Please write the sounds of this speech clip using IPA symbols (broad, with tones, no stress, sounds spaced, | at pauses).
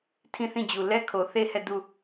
tʰ ĩ˦˨ θ ĩ˦˨ d͡ʑ u˨ l ɛ˦ kʰ o˨ θ e˦˨ h ɛ˦˨ d u˦˨